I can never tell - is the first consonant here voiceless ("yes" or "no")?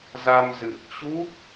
no